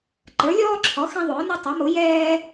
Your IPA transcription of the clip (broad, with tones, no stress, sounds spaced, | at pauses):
ǃ ə˞˩˥ lʲ ɔː˦ ǁʰ ɔ˩˥ x ɛ̃˦ ðˤ ʊː˩˥ n ɔ˦ tˤ ʌ˩˥ m ʊ˩˥ j ɛː˦